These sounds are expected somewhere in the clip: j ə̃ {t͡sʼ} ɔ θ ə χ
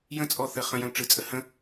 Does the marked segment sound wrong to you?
no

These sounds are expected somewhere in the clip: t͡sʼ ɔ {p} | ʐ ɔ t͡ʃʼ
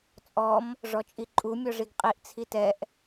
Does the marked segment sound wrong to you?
yes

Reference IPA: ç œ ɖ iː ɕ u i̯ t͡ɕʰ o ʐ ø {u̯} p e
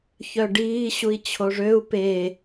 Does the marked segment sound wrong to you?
no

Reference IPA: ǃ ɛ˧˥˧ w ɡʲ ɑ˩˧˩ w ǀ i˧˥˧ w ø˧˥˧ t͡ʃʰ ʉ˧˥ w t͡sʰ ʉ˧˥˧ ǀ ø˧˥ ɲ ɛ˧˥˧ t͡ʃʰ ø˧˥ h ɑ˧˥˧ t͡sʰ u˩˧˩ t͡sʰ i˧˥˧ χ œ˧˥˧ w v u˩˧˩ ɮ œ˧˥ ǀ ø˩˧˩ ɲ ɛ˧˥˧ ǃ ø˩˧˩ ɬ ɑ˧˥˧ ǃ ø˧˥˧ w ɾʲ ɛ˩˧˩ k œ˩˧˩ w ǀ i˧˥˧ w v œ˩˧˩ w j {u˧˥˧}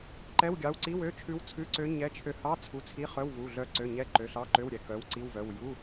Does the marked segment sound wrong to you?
no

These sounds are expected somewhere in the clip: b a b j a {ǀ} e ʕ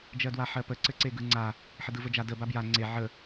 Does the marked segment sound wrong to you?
yes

